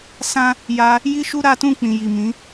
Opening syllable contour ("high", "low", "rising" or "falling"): high